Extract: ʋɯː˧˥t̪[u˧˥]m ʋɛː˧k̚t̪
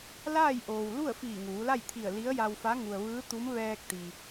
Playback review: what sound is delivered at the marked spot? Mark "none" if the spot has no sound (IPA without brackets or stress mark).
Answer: u˧˥